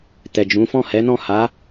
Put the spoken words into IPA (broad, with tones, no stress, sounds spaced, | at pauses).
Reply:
t ɛ˨ d͡ʒ ũ˨˦ f ɔ̃˦˨ h ɛ˨˦ n ɔ̃˦˨ h a˨˦